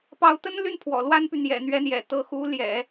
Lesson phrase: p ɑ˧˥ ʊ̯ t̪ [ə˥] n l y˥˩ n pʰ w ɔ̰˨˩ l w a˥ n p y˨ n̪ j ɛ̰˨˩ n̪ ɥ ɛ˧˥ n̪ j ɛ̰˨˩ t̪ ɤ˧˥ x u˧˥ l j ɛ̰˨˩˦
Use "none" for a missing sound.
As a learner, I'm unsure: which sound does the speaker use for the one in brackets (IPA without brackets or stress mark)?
ə˥